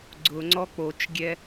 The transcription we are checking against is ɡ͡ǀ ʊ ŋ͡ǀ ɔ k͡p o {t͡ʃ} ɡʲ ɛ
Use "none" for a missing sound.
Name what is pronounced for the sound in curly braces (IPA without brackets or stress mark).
t͡ʃ